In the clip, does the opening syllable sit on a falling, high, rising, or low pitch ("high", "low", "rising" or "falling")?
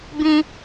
high